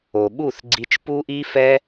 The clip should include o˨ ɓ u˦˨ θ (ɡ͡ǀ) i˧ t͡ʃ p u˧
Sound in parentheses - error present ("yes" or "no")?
no